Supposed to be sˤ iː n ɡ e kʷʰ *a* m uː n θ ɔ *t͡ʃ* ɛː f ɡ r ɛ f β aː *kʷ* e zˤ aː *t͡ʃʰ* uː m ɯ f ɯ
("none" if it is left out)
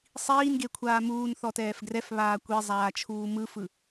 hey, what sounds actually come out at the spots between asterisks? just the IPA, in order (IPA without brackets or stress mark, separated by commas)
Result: aː, t, kʷ, t͡ʃʰ